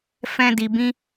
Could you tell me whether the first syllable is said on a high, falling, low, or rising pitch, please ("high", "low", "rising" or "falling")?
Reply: high